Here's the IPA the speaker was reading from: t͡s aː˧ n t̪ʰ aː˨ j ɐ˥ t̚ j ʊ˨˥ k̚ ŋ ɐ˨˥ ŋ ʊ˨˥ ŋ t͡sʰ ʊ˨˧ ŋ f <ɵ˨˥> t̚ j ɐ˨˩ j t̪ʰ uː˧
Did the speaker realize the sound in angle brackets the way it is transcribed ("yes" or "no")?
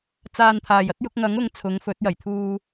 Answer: yes